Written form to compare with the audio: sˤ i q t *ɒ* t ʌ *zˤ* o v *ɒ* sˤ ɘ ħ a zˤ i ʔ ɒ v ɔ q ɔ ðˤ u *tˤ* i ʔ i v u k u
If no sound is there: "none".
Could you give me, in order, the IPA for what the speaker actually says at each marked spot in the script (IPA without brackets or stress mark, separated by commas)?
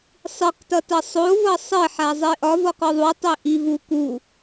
ʌ, sˤ, ʌ, tˤ